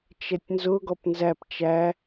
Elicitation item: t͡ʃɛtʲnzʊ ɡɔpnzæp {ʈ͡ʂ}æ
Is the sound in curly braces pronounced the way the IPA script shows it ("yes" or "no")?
no